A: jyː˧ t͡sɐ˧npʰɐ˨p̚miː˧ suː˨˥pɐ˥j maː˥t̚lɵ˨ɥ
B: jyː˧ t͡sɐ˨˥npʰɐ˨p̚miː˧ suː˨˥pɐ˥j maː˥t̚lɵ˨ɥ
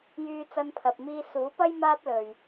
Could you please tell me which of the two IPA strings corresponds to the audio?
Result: A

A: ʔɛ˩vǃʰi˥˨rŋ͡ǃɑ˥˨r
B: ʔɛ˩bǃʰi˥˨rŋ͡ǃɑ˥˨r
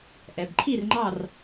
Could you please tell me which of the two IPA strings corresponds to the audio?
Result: B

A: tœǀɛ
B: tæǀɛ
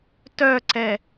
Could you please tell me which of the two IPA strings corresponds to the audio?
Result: A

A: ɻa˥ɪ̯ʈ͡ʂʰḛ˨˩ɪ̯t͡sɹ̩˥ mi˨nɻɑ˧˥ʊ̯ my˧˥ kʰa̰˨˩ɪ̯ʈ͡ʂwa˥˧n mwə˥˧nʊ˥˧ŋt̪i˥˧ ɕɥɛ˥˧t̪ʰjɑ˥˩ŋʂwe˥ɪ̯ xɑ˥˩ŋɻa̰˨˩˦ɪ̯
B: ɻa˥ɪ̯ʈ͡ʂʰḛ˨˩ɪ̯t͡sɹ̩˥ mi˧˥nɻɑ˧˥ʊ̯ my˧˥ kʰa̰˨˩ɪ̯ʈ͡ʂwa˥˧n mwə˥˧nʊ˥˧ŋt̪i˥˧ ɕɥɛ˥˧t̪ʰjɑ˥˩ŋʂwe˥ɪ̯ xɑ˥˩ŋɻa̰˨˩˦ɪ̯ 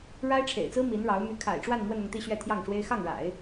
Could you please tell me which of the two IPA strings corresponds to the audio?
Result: B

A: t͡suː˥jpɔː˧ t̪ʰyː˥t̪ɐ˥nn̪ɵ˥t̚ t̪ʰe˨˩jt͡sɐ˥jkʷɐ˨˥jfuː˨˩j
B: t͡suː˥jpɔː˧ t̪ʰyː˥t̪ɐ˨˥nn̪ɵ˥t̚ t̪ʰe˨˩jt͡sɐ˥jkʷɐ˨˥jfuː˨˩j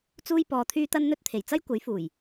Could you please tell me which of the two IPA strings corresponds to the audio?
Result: A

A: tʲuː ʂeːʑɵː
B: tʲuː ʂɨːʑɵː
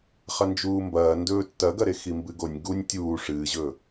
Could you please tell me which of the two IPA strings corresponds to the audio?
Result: B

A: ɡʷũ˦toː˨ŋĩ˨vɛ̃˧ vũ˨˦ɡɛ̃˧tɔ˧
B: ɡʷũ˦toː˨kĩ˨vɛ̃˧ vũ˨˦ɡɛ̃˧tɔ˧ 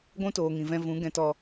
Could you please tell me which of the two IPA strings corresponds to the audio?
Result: A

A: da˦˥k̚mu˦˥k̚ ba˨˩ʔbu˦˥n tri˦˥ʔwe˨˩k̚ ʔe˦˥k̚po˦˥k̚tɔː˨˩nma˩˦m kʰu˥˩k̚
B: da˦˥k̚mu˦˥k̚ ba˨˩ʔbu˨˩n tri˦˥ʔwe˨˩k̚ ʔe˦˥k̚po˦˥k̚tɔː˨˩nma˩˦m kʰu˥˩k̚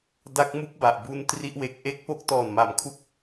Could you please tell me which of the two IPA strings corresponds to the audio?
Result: A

